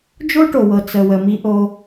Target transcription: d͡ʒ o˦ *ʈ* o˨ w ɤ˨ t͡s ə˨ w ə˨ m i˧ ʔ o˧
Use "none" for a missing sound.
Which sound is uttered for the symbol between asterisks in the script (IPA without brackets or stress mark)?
ʈ